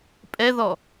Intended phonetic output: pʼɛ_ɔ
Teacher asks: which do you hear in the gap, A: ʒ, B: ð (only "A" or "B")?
B